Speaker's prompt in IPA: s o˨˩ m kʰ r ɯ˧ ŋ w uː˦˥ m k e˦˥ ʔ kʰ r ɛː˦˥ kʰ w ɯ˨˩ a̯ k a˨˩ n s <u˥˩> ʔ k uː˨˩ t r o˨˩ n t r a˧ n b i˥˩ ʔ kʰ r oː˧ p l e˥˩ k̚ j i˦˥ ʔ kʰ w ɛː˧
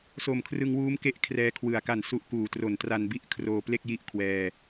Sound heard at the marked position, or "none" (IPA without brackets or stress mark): u˦˥